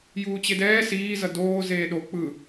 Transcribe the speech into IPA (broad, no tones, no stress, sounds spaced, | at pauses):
j uː t͡ɕ e d ɛː s iː z ʌ d oː z eː ɗ o k͡p ɯ